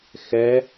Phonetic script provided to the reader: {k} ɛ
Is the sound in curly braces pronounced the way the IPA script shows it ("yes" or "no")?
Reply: no